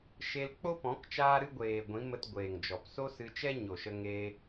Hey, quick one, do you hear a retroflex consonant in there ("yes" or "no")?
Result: no